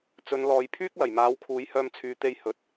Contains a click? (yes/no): no